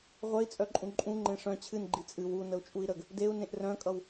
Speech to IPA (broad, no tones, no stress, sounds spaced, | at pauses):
ʁʷ œ i̯ t͡sʼ œ ǃʼ ũ ǃʼ ũ ŋ͡ǃ ẽ ʂ œ̃ t͡ɕʰ ɨ n ɡ͡ǃ i t͡sʼ ɨ w u n ə u̯ t͡ʃʼ u i̯ ɾ ə ɡ | d e u̯ n ẽ ʔ r œ̃ kʼ ʌ w